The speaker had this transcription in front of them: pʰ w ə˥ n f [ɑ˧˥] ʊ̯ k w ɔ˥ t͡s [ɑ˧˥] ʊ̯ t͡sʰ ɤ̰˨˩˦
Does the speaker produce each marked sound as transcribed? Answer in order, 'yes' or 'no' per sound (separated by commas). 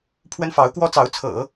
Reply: yes, yes